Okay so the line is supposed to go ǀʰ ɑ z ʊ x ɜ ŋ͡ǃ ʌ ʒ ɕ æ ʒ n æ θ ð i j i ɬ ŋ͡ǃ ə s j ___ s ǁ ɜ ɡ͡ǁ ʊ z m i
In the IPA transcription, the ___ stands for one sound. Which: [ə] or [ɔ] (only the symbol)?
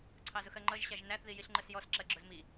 ɔ